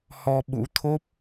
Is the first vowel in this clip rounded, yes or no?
yes